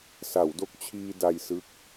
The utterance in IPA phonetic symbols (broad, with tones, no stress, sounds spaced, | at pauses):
s a˩˦ w d o˦˥ k̚ t͡ɕʰ iː˧ d a˧ j s ɯ˦˥ k̚